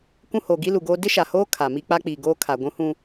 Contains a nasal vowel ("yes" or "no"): yes